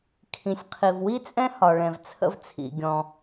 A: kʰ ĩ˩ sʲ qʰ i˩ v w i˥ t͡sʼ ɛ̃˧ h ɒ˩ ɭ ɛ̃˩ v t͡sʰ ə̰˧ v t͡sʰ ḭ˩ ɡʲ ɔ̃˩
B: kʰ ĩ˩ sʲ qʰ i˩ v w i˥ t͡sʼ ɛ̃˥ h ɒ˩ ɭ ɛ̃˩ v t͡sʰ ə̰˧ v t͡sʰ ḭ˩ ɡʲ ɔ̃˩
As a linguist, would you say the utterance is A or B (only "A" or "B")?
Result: B